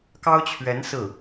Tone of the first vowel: high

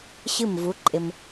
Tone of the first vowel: falling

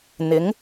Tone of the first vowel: rising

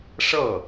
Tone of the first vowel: falling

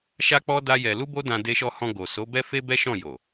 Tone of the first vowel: high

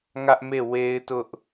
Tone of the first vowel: high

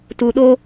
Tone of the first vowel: low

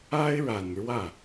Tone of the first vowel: high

